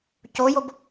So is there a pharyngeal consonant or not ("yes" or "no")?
no